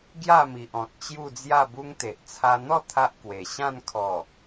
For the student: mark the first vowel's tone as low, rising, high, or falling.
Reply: falling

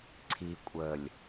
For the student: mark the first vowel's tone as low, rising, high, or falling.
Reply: low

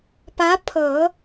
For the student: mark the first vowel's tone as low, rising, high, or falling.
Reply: rising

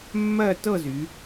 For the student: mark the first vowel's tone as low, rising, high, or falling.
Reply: falling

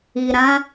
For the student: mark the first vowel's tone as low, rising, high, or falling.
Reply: low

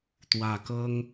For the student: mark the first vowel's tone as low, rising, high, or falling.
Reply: low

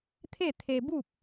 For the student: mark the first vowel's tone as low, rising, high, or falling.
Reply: falling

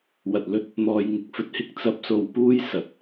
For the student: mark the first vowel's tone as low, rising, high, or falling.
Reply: low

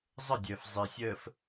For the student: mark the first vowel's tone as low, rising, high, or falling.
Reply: falling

